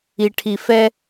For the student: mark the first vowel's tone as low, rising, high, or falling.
low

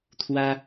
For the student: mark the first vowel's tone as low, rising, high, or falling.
high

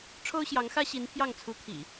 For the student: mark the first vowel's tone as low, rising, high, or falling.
high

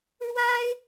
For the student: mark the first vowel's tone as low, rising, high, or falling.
high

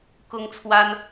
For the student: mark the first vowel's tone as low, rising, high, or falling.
high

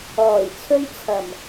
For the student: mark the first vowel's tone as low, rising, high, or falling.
low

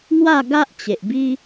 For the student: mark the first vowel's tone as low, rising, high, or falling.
falling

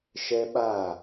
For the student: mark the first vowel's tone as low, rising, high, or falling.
high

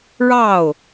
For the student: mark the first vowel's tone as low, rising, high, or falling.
falling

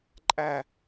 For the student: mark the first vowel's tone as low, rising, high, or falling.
falling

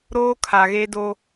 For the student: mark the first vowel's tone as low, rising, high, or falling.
high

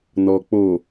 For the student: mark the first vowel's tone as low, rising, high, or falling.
low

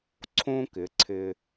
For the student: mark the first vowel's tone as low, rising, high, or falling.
high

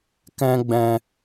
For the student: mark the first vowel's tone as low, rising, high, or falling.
high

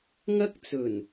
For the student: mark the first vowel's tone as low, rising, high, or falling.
high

